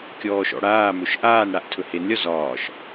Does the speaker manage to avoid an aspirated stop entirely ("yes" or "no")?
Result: no